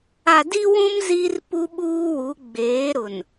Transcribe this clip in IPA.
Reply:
a˨ d i˦ w ũ˦ m z i˦ r p u˦ ɓ uː˦ w u˨˦ ɡ͡b eː˨˦ ɾ ʊ˨ n

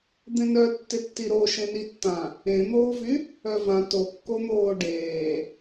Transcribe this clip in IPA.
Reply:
d̪ ẽ n œ tː ɪ tː i ɾ o ʃ ẽ n i tː ã | ẽ n̪ oː v y | œ v ã t o kː o n̪ oː ɖ eː

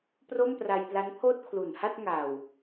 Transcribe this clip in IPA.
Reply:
p r o˥˩ m p r a˧ j p l a˦˥ n pʰ oː˥˩ t̚ kʰ l u˨˩ n h a˥˩ t̚ ŋ aː˨˩ w

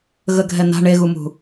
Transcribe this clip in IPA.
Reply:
ɣ ə ɡʱ ɛ n a̤ ɳ e ɣ u m ṳ

